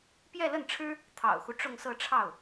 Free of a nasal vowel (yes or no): yes